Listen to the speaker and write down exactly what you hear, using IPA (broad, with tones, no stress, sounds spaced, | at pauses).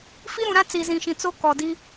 f i˦ ɾ ũ˨ ɾ ã˦ t͡s i˨ z ĩ˨ ʃ ĩ˨ t͡s o˦ k ɔ˨ d i˦